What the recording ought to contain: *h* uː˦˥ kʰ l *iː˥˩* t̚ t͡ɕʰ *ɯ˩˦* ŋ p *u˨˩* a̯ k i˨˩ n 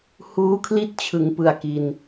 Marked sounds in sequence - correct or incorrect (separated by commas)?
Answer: correct, incorrect, correct, incorrect